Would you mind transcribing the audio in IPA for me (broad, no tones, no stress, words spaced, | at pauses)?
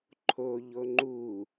ǃʰo ʎoŋ͡ǃu